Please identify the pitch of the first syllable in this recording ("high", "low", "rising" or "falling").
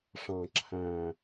low